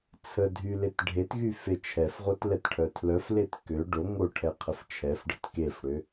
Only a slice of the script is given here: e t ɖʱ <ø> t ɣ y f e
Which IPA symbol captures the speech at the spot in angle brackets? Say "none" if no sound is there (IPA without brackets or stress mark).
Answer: e